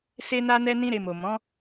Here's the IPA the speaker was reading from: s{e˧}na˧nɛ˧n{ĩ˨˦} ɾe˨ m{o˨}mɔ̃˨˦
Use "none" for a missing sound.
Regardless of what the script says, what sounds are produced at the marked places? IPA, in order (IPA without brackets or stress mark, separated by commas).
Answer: e˧, ĩ˧, o˨